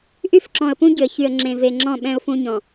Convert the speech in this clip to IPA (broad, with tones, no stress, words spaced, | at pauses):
ʔy˦fǁɔ̃˨ə̯pũ˦ ɟʏ˨ə̯çy˨ə̯ ŋ͡ǁẽ˨ve˨ŋ͡ǁɔ̃˦˨ ɓɛ̃˦ʊ̯fũ˦ɲɔ̃˨